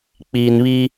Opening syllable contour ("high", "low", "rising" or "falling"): low